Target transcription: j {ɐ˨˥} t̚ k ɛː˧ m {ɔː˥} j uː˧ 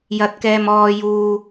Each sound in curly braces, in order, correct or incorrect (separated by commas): incorrect, incorrect